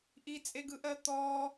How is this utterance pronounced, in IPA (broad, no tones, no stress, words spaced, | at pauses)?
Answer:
ʔit͡sʼeɡɯʔɜ t̪ɔ